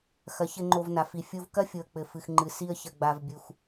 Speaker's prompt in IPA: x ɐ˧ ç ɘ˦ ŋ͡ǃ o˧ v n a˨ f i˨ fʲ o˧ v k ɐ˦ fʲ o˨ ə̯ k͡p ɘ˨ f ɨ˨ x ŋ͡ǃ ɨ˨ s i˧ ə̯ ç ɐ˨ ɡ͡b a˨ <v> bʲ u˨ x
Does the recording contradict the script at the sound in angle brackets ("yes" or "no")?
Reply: no